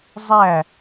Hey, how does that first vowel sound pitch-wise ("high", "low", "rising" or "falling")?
falling